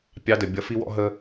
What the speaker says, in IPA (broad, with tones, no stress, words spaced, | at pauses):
pʲɑ˧ də˨ bʲʌ˧fi˦wɔ̰˦ɦəː˦